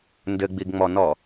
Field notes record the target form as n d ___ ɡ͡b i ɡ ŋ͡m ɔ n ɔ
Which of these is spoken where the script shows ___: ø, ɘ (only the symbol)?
ɘ